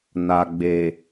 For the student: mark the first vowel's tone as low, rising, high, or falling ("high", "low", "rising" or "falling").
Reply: low